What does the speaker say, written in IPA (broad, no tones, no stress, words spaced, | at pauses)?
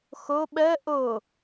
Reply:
xo ɓɜ ʔo